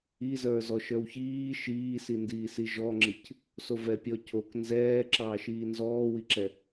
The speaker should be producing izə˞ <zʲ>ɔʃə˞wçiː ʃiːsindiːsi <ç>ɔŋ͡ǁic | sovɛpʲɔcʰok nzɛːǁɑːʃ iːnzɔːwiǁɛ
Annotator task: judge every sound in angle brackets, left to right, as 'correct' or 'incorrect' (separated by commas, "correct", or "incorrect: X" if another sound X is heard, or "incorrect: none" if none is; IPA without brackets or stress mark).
incorrect: z, incorrect: ʒ